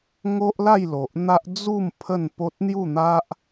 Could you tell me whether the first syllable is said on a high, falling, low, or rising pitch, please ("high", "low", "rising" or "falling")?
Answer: high